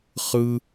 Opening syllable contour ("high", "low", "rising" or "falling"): high